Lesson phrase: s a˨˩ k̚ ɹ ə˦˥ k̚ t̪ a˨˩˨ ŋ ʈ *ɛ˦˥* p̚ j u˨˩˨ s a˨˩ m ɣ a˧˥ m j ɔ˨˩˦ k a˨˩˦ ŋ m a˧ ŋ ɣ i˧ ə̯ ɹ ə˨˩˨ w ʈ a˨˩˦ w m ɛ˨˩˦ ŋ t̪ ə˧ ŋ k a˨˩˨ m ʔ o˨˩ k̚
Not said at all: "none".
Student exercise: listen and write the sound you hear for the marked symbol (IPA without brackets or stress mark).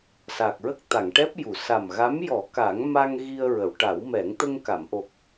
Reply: ɛ˦˥